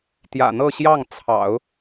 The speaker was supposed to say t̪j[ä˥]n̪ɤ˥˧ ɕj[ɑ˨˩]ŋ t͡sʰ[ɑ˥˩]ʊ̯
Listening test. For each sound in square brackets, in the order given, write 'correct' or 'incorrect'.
incorrect, incorrect, incorrect

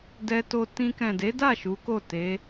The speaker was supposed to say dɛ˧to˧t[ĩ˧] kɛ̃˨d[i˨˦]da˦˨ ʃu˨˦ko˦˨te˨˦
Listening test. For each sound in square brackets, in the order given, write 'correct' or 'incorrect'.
correct, incorrect

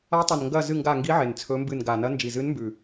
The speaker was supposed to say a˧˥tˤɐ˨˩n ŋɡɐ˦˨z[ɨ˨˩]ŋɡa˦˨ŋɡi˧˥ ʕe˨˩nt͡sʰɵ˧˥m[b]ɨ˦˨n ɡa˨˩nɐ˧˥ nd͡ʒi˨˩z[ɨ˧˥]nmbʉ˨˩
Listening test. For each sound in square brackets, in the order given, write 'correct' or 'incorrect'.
incorrect, correct, correct

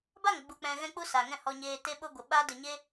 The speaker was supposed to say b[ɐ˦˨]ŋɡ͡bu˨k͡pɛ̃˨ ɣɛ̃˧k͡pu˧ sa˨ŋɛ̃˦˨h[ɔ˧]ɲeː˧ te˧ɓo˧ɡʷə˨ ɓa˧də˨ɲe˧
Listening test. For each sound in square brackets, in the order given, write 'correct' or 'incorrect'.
incorrect, correct

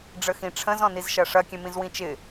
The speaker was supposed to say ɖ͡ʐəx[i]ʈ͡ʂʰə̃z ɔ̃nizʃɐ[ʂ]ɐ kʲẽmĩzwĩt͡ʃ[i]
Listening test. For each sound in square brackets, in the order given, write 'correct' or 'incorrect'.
incorrect, correct, incorrect

